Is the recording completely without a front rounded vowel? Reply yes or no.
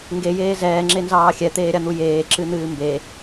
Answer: yes